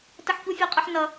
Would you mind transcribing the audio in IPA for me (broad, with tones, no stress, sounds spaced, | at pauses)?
t ə˦ ħ ç u˦ fʲ ɑ˦ qʼ ʌ˦ ħ n ʌ˦